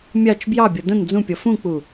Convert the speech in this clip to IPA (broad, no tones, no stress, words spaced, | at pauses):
mʲɑt͡ʃ bjɑbʲɔ də̃n d͡zũpʲɔ fũk͡pu